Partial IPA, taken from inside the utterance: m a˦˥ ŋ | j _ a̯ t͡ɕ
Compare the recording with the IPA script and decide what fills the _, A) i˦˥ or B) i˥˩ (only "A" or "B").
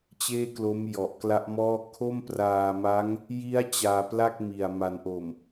A